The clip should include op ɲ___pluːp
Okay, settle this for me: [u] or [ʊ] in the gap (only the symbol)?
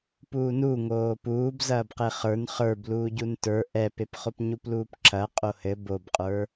u